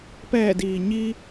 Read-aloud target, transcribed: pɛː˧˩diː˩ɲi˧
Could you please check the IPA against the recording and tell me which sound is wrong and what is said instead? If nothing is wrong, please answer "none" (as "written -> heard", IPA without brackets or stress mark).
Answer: none